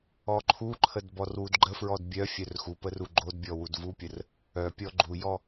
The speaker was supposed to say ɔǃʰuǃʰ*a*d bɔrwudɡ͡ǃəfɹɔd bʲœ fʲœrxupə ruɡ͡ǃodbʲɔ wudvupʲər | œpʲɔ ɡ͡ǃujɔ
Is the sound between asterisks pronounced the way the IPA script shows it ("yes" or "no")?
no